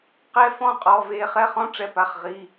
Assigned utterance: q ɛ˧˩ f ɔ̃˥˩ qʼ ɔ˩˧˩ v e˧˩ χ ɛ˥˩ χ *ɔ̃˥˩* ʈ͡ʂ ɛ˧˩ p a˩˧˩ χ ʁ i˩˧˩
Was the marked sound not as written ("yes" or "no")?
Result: no